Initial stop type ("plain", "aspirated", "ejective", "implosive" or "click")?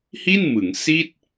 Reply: plain